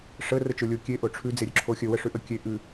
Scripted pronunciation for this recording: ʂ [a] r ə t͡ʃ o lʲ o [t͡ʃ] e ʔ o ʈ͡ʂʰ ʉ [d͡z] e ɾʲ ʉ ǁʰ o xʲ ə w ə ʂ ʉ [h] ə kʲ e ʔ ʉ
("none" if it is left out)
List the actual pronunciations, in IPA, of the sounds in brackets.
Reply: ə, kʲ, d͡z, ʔ

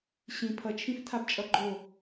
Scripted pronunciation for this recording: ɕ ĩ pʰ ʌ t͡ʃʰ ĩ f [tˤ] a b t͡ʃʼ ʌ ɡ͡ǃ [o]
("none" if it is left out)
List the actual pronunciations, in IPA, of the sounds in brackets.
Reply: tʰ, o

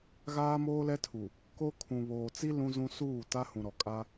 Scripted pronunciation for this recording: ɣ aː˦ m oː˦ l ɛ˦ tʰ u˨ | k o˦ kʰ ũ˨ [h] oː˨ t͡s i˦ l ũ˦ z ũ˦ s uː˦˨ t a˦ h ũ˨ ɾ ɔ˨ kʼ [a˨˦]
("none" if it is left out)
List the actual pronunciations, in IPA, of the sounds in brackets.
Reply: β, a˦

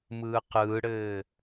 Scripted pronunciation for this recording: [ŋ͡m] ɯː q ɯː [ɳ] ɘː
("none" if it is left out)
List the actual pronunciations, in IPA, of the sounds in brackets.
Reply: m, ɽ

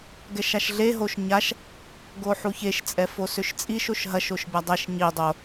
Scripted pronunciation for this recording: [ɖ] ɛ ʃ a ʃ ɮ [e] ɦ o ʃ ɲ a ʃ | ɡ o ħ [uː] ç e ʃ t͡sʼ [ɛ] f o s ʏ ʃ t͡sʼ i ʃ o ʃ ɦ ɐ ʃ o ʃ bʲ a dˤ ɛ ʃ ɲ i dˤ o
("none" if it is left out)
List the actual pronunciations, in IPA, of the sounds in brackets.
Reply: ɡ, e, u, ɛ

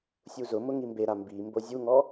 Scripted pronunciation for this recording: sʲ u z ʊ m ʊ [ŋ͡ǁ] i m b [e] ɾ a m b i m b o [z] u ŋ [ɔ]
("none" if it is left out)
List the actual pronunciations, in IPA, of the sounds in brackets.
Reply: ŋ, e, zʲ, ɔ

